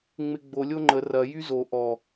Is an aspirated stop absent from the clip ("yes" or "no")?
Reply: yes